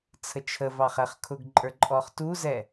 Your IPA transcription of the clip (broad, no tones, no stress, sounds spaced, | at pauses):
t͡sʰ ə t͡ʃʰ ə v ɑ χ ɛ χ kʰ ʊ ɡ ǃʼ ə˞ ǃʼ ɔ χ t u z ɛ